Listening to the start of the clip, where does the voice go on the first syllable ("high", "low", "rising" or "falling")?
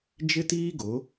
high